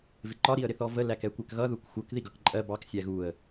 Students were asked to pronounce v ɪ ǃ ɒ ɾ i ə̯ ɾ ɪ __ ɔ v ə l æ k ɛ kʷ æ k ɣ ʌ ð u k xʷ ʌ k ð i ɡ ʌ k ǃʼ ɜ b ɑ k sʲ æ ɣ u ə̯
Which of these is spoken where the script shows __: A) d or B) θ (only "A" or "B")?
B